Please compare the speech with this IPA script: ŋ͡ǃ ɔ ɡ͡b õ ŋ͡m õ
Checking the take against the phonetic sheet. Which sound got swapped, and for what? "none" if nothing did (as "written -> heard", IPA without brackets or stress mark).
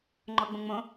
none